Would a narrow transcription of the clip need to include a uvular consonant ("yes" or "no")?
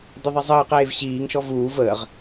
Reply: yes